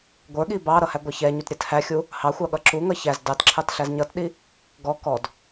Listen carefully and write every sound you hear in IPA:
ɡʷ ə˞ ɠ i b ɑ ɾ ʌ h æ ɡʷ ɑ ç ɛ ɲ u t ɾʲ ɛ t h æ xʲ u | h ɑ xʷ ɑ ɠ ʌ ǁ u ŋ ʌ ç æ z d ɑ t ǁʰ ɑ t ɬ æ z ɲ ʌ t ɗ i | ɡ ɔ k ɔ d

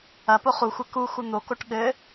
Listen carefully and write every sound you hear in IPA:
ɐ p o χ u xʷ ɘ k u x u n̪ o k o ʈ ɠ ɘ

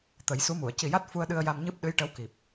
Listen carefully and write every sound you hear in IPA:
t̪ ə˨˩˦ j s u˧˥ m u˨˩˨ ə̯ c i˨˩ j a˦˥ t̚ f u˧ ə̯ ɗ ɨ˧ ə̯ j a˧ m ɲ ɨ˦˥ p̚ ɗ ɨ˧˥ j ʈ ə˧˥ w k i˨˩ p̚

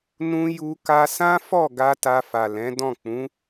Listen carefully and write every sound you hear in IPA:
n ũ˧ j u˧ k a˧ s ã˦ f ɔ˦˨ ɡ a˧ t a˧ f a˨ l ɛ̃˨˦ d ɔ̃˦˨ k͡p ũ˨˦

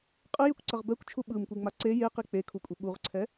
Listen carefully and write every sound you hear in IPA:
qʼ ɯ j e kʷ ǀ ʌ ʁ b ɛ kʷ t͡ʃʰ u ɓ ɯ m kʷ i ŋ͡m a ǀ e j e q i k͡p e kʰ u kʷʼ i ɓ u ʁ ǀʰ ɛ

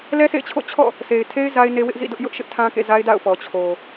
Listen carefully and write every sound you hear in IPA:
l ɛ˦ sʰ ḛ˦˨ ɪ̯ t͡ɕʰ o̰˦˨ t͡ɕʰ ɔ̰˦˨ | sʰ e˨ ɪ̯ tʰ e˦ ɪ̯ z a˦ ɪ̯ n e˦ w ɪ˦ ʔ z ḭ˦˨ d ʊ˦ ʔ j ʊ˦ ʔ ʃ ɪ˦ ʔ tʰ ã˦ k ḛ˦˨ z a˦ ɪ̯ d a̰˦˨ ʊ̯ p ɔ˨ t͡ɕʰ o˨

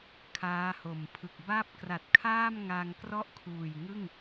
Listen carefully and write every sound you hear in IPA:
kʰ aː˦˥ h o˨˩ m pʰ ɯ˨˩ k̚ b a˥˩ p̚ k r a˨˩ t̚ kʰ aː˥˩ m ŋ a˧ ŋ k r ɔ˥˩ ʔ kʰ uː˨˩ j ŋ ɯ˥˩ ŋ

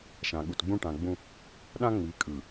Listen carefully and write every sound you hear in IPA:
ʃ ã˨ ɠ u˨ t ɡ͡b ũ˦ ʈ ã˨ ɡ͡b ũ˦ | ɗ ã˦ ŋ͡m i˨˦ kʼ ɯ˨

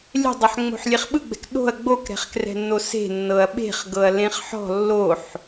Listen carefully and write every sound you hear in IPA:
lʲ ɛ̤ dˤ o ħ ŋ͡m o̤ ħ lʲ e χ ɓ ɯ ɡ͡b ɛ̤ k ɗ o̤ ɐ̯ ɡ͡b o k ɾ ɛ̤ χ k r ɛ̤ nː o s e̤ nː ɤ ɐ̯ ɓ e̤ χ ɡ ɤ ɐ̯ l ẽ χ ħ ɔ̤ lː o ħ

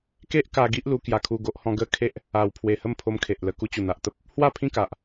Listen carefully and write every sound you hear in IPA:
k e˦ ʔ k a˧ ɡ i˦ ʔ l u˧ k j a˧ kʰ u˧ ɡ o˦ ʔ h ɔ̃˦ ɡ ə˥˧ kʰ e˦ ʔ | a˨˩ w pʰ w e˨˩ h ə˥˧ m pʰ o˧ m kʰ e˨ ʔ l ə˧ k u˧ t͡ɕ u˨˩ n̪ a˨ ʔ t̪ ə˦ p̚ | h w a˥˧ pʰ ĩ˥˧ k a˨ ʔ

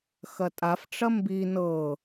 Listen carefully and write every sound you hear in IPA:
x ɐ tʼ a f ʈ͡ʂ ɐ m b i n ɤ

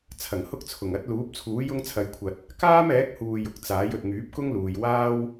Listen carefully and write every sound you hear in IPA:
t͡sʰ ɐ˨˩ ŋ h ʊ˥ k̚ t͡sʰ ʊ˨˩ ŋ ɐ˨˥ t̚ l uː˨˥ p̚ t͡sʰ uː˨˥ j ʊ˧ ŋ t͡sʰ ɐ˨˧ j kʷʰ ɐ˨ t̚ | k aː˥ m ɛː˨˥ k̚ h uː˨ j ʊ˨ k̚ t͡s aː˨˥ j ɵ˨ t̚ ŋ yː˨˥ p̚ k ʊ˥ ŋ l uː˨ j w aː˥ w

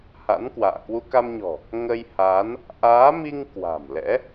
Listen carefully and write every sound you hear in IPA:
h a̰˧˥ n k w a̰ː˧˨ k w u˧ k a˧ m ɲ ɔ̤˨˩ | ŋ ə˧ j h aː˨˦ n | ʔ aː˨˦ m i˧ ŋ k w a̤˨˩ m l ɛ̰˧˥

